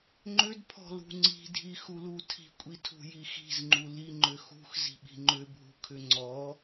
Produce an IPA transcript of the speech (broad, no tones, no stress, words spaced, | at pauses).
ŋ͡ǃʏdpʰɔ̤lṳ ŋ͡ǀi̤dʱixulu tʰi̤kʷʼitʰṳji xi̤zŋ͡ǃu liŋ͡ǃʏ xṳxzi̤ɓi̤ ŋ͡ǃʏbʱṳkʰʏ ŋ͡ǀɔ